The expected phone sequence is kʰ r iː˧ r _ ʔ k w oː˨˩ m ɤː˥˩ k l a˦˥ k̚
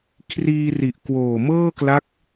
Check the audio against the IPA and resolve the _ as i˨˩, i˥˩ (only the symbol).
i˨˩